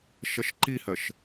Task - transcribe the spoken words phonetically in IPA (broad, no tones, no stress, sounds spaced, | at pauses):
ʃ ɐ ʃ ǃ i h ɜ ʃ